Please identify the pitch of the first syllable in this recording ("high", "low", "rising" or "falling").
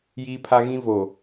high